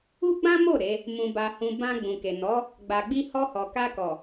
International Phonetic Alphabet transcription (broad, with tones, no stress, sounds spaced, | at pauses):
u˦ ɡ͡b ã˦ m o˦˨ ɾ e˨˦ | m ũ˧ b a˧ h ũ˧ b ã˧ ɡ͡b ũ˨ k e˨ n ɔ˨˦ | ɡ͡b a˧ ɡ͡b i˧ h ɔ˧ h ɔ˨ k a˧ k ɔ˨